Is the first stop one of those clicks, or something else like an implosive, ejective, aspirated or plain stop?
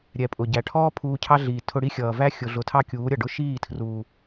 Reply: ejective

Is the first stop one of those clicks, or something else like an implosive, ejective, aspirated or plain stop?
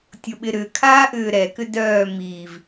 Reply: plain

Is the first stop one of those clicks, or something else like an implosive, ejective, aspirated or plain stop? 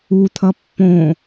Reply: aspirated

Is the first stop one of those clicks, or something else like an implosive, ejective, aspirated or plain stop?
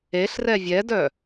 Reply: plain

